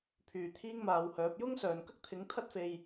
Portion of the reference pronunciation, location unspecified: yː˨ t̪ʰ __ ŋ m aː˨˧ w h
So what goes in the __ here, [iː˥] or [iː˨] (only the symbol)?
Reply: iː˥